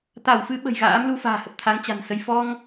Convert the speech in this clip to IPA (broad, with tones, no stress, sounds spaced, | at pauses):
t̪ a˧˩ w f ɨ˨˦ ɓ ə̤˨˩ j ɣ a̰ː˧˥ m l u˧ f a̤ː˨˩ h ə˨˩ p̚ t̪ʰ a˨˦ ŋ t͡ɕ a̤˨˩ n s ə˧ j f ɔ˧ ŋ